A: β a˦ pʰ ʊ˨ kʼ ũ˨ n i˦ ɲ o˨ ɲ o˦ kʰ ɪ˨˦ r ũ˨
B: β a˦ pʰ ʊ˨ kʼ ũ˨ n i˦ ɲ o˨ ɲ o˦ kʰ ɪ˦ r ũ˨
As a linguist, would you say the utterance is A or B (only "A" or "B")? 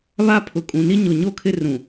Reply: B